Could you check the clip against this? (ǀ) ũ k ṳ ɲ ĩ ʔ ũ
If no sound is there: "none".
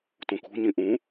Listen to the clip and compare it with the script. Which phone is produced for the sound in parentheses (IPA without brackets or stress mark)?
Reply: t